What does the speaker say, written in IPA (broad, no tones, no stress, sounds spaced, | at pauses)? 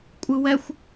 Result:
kʷʼ ɯ w ɛ xʷ